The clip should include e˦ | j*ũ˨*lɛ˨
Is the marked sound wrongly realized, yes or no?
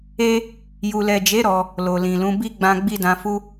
yes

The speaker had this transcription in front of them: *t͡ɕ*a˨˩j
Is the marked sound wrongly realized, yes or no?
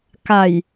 yes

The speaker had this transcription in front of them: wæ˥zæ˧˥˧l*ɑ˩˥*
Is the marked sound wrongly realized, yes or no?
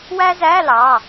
yes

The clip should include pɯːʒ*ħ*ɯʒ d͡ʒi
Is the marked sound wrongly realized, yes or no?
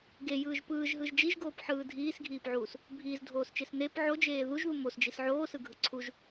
yes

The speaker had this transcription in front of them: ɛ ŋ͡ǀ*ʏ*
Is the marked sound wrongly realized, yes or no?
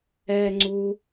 yes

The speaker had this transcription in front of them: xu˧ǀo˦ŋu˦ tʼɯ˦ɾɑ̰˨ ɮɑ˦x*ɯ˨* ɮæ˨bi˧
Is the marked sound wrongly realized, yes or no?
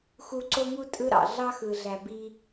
no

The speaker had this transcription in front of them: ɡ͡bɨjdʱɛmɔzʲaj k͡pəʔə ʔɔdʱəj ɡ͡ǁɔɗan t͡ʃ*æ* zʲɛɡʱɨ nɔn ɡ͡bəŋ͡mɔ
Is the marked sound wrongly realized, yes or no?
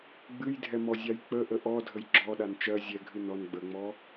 yes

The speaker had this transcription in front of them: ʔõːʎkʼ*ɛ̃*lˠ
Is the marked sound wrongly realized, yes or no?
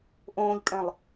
no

